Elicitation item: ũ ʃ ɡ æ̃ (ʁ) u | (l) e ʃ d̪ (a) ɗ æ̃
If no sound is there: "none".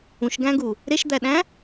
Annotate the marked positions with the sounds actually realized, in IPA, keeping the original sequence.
ɡ, ɾ, æ

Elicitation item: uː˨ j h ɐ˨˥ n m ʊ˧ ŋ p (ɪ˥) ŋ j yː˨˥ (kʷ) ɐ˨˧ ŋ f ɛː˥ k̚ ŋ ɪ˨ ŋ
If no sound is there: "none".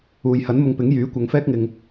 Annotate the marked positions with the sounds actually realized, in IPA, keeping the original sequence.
ɪ˨˥, kʷ

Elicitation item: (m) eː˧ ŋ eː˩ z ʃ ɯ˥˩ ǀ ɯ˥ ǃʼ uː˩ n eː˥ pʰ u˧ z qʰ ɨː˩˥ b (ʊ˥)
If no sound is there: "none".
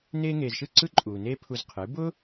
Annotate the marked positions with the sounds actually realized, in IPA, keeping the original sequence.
n, ʊ˥

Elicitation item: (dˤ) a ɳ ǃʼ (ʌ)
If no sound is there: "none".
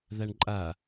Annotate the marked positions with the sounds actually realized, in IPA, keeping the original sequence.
ð, a

